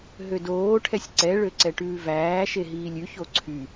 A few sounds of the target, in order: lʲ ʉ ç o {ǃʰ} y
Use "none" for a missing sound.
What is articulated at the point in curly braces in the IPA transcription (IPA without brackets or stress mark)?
ǀʰ